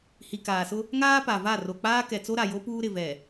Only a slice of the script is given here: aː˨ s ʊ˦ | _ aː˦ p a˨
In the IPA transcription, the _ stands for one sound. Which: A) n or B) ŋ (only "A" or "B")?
B